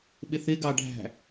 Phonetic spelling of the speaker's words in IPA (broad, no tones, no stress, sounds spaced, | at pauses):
ɓ ɪ θ ɪ ɡ ɑ ɖʱ æ̤